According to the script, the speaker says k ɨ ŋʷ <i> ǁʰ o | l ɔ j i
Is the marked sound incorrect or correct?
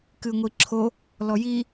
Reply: correct